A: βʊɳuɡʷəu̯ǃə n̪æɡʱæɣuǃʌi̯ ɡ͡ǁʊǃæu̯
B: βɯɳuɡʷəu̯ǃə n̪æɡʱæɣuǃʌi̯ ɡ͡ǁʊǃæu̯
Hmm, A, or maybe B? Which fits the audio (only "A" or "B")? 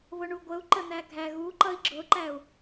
A